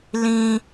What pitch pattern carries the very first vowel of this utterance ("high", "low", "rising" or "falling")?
high